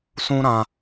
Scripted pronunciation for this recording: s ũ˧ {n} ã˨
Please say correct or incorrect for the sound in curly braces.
incorrect